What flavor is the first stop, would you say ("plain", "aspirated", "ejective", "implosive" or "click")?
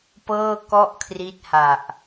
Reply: plain